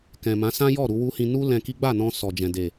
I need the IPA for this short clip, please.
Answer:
k ɛ̃˨ m ã˨˦ s ã˦ j ɔ˦˨ ɾ u˧ w u˦ h ĩ˧ n u˦ l ɛ̃˧ k i˦ ɡ͡b a˦˨ n ɔ̃˧ s ɔ˨ d͡ʒ ɛ̃˨ d e˨

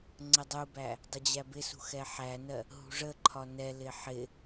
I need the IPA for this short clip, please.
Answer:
ŋ͡ǀ ə dˤ u b æ | dˤ ə d͡ʑ æ b ɪ s ṳ x ɛ ħ æ n ɜ | ɦ ṳ ʐ ə ǃʰ ɒ n ɛ l ɪ ħ ɪ

